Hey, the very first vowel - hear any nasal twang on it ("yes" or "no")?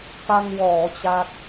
no